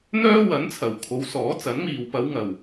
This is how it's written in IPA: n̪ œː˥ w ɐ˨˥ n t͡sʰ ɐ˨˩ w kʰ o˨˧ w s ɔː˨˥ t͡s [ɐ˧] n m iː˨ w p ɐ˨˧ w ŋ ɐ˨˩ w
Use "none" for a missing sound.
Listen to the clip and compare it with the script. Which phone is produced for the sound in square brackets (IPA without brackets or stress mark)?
ɐ˨˥